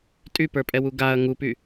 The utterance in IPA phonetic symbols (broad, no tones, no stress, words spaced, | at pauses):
tʼypə˞pʼɛwu ɡaɐ̯ ŋupy